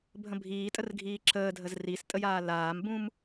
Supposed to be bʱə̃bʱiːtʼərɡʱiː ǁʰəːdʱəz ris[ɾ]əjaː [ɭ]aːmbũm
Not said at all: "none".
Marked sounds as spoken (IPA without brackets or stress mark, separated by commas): tʼ, l